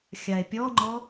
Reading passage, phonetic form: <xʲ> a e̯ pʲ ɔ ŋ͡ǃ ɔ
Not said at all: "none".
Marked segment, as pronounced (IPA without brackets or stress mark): xʲ